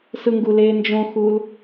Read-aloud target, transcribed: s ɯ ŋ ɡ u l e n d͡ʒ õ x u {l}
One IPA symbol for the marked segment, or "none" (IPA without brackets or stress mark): l